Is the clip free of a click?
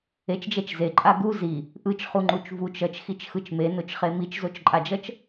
no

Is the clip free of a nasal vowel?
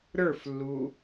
yes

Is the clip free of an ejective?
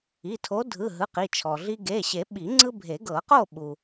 yes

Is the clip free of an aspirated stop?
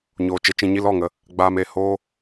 yes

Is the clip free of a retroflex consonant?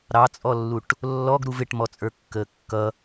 no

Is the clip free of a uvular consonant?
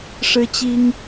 yes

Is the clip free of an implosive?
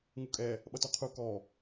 no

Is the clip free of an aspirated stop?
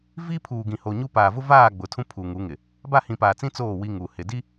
no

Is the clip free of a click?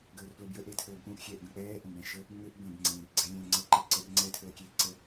no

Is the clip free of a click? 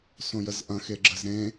no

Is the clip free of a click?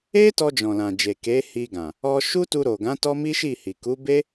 yes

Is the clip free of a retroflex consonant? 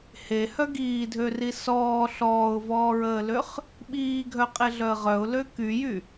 yes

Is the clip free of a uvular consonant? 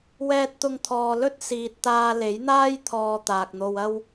yes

